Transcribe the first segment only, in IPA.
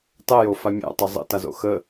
tˤ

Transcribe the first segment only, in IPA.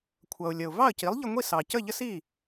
kʷʰ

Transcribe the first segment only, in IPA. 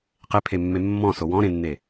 q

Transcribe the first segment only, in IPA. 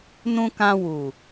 n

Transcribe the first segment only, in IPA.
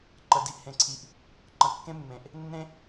ǃ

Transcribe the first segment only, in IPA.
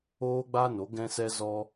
oː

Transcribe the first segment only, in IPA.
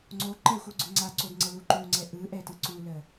ŋ͡ǀ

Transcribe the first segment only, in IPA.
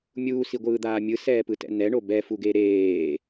mʲ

